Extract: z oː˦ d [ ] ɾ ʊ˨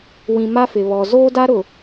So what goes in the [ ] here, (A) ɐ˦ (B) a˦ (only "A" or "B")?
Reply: B